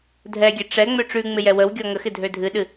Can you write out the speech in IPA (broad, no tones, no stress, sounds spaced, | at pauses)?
dʱ ɛ ɡʲ ɛ ʈ͡ʂ ɛ ŋ͡m ø ʈ͡ʂ ʉ ŋ͡m ɪ j ɛ w ə w ɡʲ ɔ ŋ ə x ɪ dʱ ø dʱ ɨ ɗ ɨ